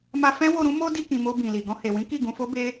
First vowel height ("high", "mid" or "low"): low